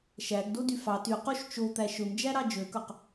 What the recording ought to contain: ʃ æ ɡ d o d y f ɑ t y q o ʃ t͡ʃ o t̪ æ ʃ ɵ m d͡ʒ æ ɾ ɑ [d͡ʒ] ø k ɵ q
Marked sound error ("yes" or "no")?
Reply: no